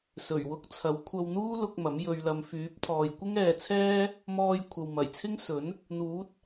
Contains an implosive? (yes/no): no